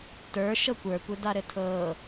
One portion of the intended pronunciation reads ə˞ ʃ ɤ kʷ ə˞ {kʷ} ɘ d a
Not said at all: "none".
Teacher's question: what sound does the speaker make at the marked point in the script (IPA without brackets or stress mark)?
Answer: kʷ